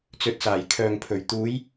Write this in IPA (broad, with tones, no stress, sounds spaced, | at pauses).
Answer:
t͡s ɵ˨˥ t̚ s aː˨˩ j kʰ œː˨ ŋ pʰ ɵ˨˩ ɥ t̪ uː˨˧ j